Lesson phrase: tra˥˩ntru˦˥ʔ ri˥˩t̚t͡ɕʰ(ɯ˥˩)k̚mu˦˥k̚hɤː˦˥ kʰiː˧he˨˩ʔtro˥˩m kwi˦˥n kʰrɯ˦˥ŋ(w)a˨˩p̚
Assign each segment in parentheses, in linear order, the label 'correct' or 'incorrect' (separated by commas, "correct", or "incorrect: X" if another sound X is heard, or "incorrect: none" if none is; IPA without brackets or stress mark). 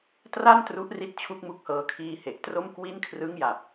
incorrect: u˥˩, incorrect: j